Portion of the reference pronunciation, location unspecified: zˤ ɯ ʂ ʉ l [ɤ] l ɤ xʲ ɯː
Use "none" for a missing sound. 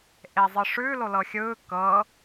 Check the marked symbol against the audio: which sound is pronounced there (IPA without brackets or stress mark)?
o